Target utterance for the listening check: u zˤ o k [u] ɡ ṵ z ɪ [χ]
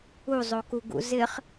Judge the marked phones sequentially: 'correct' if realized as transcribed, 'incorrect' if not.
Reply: correct, correct

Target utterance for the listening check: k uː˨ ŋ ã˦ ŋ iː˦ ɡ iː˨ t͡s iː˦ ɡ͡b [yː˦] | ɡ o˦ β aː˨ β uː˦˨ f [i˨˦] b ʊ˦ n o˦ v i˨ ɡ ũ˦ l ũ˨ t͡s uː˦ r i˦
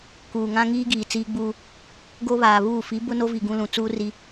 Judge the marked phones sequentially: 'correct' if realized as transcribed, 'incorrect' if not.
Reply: incorrect: uː˦, correct

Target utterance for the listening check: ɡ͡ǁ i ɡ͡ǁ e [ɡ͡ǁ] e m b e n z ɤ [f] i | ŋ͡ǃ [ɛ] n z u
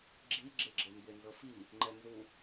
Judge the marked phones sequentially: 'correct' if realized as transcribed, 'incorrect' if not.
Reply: correct, correct, correct

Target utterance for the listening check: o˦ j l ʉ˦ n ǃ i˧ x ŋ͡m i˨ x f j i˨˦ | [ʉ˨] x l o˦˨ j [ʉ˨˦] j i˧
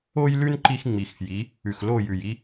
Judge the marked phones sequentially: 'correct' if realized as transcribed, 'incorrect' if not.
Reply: correct, incorrect: ʉ˨

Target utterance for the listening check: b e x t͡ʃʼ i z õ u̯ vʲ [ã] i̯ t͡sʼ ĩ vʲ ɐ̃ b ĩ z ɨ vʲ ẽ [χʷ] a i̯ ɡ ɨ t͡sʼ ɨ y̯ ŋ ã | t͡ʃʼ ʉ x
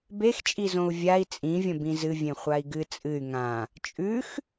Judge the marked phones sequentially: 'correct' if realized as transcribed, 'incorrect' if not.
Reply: incorrect: a, correct

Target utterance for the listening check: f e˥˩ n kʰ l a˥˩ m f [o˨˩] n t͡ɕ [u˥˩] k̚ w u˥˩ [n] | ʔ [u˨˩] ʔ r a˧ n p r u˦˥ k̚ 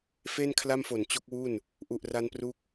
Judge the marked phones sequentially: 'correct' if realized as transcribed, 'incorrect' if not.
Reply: correct, incorrect: o˥˩, correct, correct

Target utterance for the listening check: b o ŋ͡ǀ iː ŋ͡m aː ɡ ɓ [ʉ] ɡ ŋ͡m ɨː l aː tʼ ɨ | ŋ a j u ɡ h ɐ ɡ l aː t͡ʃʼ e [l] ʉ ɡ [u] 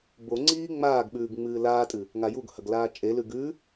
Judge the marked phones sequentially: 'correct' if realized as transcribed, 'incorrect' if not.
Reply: incorrect: ʉː, correct, incorrect: ʉ

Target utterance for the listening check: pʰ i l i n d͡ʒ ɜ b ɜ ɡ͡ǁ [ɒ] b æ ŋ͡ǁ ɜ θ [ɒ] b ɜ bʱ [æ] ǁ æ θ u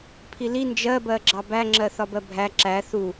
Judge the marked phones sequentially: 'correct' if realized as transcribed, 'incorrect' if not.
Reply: incorrect: ɑ, correct, correct

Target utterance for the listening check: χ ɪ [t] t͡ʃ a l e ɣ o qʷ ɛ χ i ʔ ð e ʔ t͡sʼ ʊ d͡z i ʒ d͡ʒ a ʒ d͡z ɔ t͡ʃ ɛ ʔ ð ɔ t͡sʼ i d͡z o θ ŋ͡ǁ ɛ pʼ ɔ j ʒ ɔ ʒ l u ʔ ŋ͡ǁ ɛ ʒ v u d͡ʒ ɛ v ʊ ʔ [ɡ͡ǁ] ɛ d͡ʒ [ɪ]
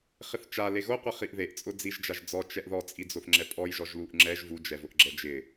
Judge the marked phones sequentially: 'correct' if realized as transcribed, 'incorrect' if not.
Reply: incorrect: θ, correct, correct

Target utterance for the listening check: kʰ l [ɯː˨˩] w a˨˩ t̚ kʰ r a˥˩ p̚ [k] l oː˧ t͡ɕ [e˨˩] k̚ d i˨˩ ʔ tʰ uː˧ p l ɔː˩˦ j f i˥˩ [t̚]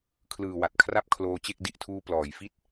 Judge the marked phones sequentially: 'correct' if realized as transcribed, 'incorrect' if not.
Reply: correct, incorrect: kʰ, incorrect: e˥˩, correct

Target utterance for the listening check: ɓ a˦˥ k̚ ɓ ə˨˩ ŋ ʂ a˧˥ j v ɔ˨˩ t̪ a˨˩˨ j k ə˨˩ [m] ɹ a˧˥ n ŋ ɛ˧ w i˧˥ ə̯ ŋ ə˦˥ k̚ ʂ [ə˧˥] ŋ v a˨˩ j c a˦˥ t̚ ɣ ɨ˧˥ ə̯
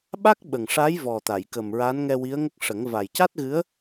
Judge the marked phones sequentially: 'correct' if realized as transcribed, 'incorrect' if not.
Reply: correct, incorrect: ə˨˩˦

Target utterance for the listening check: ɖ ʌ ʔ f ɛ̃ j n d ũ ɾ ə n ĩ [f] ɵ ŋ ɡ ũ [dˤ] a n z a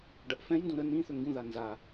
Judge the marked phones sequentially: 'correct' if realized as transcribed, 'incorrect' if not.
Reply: incorrect: θ, incorrect: ð

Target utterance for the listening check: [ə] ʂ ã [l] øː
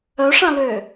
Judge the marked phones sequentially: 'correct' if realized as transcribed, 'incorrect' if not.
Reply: incorrect: œ, correct

